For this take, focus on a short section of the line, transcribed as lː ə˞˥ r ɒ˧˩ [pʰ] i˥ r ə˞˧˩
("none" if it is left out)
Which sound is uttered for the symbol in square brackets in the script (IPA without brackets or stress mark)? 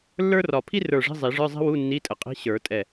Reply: pʰ